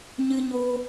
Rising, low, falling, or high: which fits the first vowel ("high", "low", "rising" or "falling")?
high